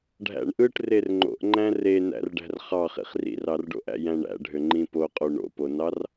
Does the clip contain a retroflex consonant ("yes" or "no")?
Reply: yes